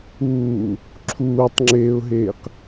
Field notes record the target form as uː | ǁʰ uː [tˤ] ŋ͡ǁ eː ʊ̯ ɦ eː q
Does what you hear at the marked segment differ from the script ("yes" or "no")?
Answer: no